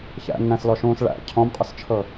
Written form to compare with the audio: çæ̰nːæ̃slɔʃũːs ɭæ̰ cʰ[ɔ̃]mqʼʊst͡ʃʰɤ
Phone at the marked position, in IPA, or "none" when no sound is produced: ɔ̃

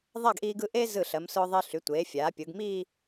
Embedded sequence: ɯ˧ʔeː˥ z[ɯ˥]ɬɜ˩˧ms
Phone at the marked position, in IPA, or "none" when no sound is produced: ɯ˧˩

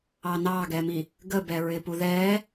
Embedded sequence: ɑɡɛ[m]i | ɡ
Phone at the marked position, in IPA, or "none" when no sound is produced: m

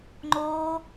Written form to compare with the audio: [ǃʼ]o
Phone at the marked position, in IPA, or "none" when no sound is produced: ŋ͡ǃ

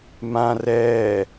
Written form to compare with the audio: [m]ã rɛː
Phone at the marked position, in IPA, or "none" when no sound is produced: m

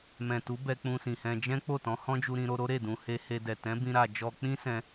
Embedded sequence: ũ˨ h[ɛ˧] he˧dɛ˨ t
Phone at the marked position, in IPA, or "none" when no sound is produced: e˧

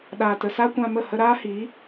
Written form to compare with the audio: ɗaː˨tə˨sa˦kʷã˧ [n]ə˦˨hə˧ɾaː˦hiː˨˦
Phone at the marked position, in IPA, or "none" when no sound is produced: m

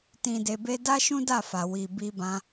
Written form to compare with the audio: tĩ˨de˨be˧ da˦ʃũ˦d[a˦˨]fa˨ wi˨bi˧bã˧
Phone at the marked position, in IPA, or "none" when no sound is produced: a˦˨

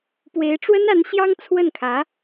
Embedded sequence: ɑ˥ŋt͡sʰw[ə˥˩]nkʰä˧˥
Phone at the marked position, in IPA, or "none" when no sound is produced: ə˥˩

